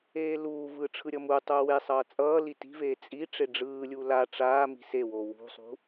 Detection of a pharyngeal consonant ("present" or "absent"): absent